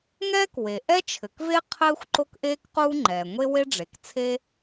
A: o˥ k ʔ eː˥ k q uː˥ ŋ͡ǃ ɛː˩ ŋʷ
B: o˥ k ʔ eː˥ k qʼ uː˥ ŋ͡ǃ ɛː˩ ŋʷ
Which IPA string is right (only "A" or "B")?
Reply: A